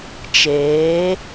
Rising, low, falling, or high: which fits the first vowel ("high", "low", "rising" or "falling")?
rising